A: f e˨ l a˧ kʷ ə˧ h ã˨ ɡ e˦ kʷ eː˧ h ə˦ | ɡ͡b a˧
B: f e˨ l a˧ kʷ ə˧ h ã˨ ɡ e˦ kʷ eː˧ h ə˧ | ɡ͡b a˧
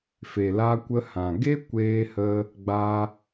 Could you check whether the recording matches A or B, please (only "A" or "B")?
B